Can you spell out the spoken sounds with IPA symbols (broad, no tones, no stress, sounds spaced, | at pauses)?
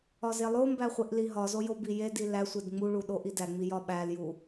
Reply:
ɒ z e lˠ o m b æ χʷ e ʔ l i ɦ ɒ z o j o b i j e d i l æ sʷ e d ŋ͡m u ɭ u ɗ o ʔ i d æ ŋ͡m i j ɒ ɓ æ l j u